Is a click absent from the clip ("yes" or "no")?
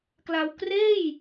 yes